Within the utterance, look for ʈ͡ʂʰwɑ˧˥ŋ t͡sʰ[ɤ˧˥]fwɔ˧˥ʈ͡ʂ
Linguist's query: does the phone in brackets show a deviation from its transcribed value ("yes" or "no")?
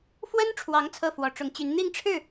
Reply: yes